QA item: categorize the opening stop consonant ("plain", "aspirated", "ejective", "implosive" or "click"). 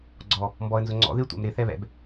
click